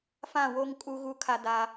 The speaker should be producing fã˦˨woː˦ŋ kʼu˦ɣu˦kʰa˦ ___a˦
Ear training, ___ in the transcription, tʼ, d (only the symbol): d